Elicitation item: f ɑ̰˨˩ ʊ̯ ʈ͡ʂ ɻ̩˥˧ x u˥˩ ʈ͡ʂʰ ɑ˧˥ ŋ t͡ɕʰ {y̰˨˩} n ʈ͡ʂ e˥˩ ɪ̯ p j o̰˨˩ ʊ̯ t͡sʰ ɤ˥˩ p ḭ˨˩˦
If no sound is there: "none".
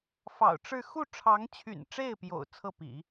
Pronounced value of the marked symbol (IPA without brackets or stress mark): y̰˨˩